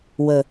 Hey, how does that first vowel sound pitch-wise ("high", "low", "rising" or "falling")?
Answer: low